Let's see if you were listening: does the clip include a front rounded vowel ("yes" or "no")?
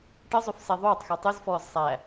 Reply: yes